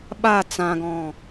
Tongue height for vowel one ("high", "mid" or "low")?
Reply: low